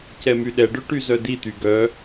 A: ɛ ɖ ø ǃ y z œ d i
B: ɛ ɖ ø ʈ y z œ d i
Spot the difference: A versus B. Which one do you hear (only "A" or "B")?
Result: B